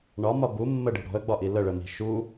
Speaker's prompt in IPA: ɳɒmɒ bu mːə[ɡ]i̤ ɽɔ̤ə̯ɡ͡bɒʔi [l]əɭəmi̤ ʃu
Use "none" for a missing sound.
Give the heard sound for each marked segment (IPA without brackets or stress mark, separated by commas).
ɖ, l